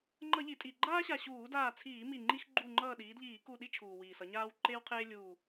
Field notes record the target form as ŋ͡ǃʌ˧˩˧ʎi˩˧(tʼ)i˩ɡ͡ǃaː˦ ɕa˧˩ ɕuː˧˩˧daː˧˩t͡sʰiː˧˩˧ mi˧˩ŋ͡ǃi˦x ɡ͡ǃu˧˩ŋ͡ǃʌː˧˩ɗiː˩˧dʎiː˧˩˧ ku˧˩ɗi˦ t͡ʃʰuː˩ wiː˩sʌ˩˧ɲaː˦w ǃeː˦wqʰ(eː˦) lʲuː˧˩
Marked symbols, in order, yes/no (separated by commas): yes, yes